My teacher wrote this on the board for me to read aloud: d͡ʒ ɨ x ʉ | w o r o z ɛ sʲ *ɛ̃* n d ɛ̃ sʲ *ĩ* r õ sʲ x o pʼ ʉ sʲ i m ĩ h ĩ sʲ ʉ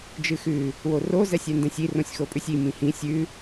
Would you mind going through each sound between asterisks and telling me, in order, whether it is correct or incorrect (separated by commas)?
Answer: incorrect, incorrect